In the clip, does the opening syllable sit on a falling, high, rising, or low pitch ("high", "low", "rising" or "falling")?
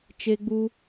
high